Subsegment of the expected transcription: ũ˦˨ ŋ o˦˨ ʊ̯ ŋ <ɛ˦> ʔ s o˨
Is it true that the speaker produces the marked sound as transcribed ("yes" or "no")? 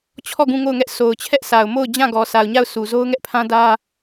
yes